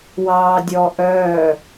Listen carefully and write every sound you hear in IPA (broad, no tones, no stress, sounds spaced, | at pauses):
w ɑː dʲ ɔ ʔ œː